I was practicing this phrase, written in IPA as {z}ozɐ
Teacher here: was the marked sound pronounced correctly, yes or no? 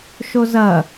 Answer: no